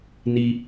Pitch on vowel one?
high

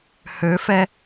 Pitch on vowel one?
rising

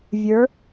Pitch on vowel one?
rising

